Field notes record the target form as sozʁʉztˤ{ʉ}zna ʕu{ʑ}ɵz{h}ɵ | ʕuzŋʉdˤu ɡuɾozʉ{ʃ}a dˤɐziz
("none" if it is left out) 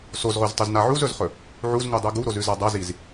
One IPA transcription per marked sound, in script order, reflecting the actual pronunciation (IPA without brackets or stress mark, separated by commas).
ʉ, z, χ, z